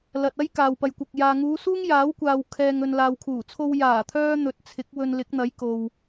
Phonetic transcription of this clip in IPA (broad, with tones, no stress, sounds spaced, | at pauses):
l ɐ˨ t̚ ɐ˥ j k aː˨ w p ɐ˨ j kʷ ɐ˨ k̚ j aː˨ ŋ uː˨˧ s uː˥ ŋ j aː˨˥ w kʷ aː˨ w kʰ ɛː˨ ŋ ɵ˨ n l aː˨ w kʰ uː˨˩ t͡sʰ o˧ w j aː˨˩ t̪ʰ œː˥ n̪ ɵ˨˥ t̚ t͡sʰ ɪ˨˥ k̚ w ɵ˧ n l ɪ˨˥ k̚ n̪ ɐ˨˥ j k o˨ w